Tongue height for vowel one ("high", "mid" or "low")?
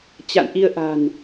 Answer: low